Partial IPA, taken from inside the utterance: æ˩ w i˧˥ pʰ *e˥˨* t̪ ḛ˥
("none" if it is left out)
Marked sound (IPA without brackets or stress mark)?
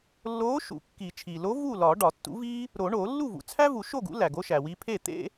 e˥˨